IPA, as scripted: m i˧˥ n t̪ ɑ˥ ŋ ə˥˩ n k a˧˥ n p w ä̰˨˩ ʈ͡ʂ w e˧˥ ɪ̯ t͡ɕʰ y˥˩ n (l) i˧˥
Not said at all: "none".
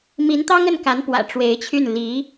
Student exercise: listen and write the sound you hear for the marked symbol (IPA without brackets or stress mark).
l